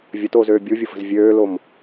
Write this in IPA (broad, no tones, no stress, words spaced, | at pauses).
vʲətoːzøː bʲuvʲʊfə̤z vʲøːlom